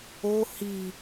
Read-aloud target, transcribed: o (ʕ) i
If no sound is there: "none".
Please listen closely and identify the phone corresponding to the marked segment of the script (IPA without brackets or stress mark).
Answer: h